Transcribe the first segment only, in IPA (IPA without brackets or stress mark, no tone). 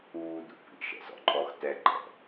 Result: uː